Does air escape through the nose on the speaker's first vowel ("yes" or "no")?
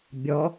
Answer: no